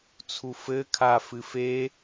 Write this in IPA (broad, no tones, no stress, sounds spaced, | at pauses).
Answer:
t͡sʰ u f ɘ kʰ a f ɨ f e